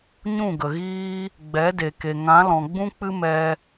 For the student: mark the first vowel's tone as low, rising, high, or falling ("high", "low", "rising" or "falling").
falling